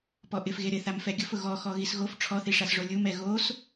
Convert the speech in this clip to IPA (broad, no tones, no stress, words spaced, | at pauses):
pɔʔɪf ɣeɾɪ θamfɛɡʲʊfʊ ɣɔxɔ ɣisɣof ʈ͡ʂʰɔθiʂasʐo lʲum ɛɣos